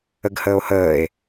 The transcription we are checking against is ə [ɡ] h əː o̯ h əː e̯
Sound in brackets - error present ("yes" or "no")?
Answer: no